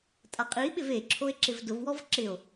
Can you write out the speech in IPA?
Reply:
tʼaqʼiɓɪv eǁʰoe̯ ǁɪvdʊvwɔv ǁɪo̯

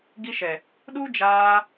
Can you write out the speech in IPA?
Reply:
ɡi˧ʃɛ˨ | ɗu˦d͡ʒaː˧

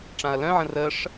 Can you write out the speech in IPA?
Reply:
ʈ͡ʂãɐ̯lœ̃ʕə̃ rəʂ

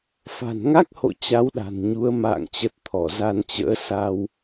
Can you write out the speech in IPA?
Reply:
fa̤˨˩nŋa˦˥k̚ho̰˧˨ t͡ɕa˨˦wɗa̤˨˩nɲu˨˦ə̯ ma̰ː˧˨ŋt͡ɕə˨˩t̚ t̪ʰɔ˧˩za˧nt͡ɕə̰ː˧˥ sa˧w

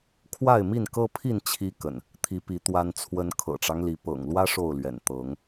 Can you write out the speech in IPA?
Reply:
kʰwa˥˨ɪ̯mi˥˨nkɤ˦pʰi˥˨n t͡ɕʰi˦ kə̰˨˩n | t̪ʰi˨˦pi˨˦ t̪wa˦nt͡sʰwə˦n kʰɤ̰˨˩ʈ͡ʂɑ˦ŋli˨˦ pɤ̰˨˩ŋlwä˦ ʂo˥˨ʊ̯lɥɛ̰˨˩n t̪ɤ˨˦ŋ

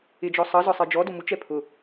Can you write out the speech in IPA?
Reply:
ɪd͡ʒɔ sˤʌ zɒsˤɜd͡ʒɔdʊ mut͡ʃɛ pʰʊ

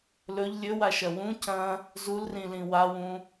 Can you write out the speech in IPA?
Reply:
lɵʎ lʲɵwaʃɐ wũ cɐ̃ | zulrĩlĩ wawũ

